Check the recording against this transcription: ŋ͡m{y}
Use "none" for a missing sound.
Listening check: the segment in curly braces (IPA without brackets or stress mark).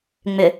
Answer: ʏ